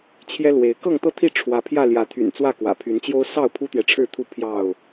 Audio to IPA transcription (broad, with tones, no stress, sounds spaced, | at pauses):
t͡ɕʰ j ɛ˦ l w e˨˦ ɪ̯ k ɤ˥˨ ŋ t̪ ɤ˥˨ t̪ʰ i˥˨ ʈ͡ʂʰ w ä˨˦ pʰ j ä˥˨ l j ä˨˦ t̪ʰ y̰˨˩ n t͡s w ä˥˨ k w ä̰˨˩ pʰ y˨˦ n t͡ɕ j o˦ ʊ̯ s ɑ˥˨ ʊ̯ pʰ u˦ t̪ j ɛ˨ ʈ͡ʂʰ ɻ̩˥˨ t̪ʰ u˥˨ pʰ j ɑ˥˨ ʊ̯